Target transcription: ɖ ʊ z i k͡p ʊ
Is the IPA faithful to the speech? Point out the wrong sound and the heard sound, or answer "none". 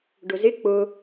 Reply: i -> ɪ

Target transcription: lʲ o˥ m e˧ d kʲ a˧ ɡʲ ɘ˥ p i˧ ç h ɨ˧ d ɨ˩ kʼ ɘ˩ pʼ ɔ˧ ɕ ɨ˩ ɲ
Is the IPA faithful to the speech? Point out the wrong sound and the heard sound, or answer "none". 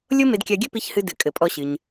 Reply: none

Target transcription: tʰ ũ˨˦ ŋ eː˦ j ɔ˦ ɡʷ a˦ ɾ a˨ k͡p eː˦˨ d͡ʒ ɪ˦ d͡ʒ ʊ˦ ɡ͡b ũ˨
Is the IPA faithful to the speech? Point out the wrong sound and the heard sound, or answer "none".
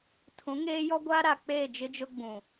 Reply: none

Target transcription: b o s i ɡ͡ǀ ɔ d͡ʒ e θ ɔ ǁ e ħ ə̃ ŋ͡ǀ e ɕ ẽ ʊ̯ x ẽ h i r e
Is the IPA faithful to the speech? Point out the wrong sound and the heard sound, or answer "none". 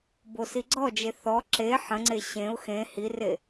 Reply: none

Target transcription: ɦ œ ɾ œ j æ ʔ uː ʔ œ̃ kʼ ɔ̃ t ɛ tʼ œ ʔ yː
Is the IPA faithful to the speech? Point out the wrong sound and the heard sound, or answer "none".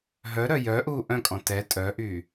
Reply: æ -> œ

